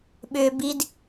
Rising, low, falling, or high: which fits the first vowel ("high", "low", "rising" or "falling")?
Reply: high